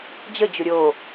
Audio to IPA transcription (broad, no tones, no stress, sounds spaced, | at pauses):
d͡ʑ ə d͡ʑ ʊ ɾʲ o